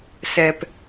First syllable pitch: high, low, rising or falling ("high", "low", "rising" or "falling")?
low